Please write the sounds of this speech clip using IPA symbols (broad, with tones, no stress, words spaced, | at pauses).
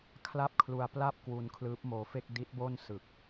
kʰla˥˩p̚kʰlu˧a̯ pla˥˩p̚kwu˧n kʰlɯː˦˥p̚moː˧fe˥˩k̚ di˦˥t̚bo˥˩n sɯ˨˩k̚